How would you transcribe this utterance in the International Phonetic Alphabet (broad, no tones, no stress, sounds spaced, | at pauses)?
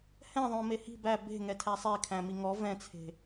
h ɛ̃ ðˤ õ m e h i̤ b æ b e̤ ŋ ɛ tʰ æ sˤ e kʰ æ̃ m i ŋ ɔ v ɛ̃ t͡sʰ e̤